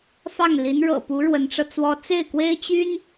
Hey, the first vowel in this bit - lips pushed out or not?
no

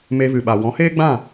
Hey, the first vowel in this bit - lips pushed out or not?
no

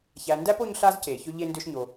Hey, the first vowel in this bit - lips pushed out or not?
no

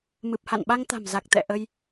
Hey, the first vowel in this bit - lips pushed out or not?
no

